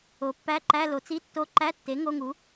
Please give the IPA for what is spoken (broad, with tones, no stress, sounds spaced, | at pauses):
o˩˥ pː æ˧˥˧ ǃ æ˧˥˧ l o˩˥ t͡s i˧˥˧ tː o˧˥˧ ǃ æ˧˥˧ tː e˩˥ ŋ o˧˥˧ ŋ u˩˥